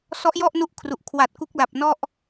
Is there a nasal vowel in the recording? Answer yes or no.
no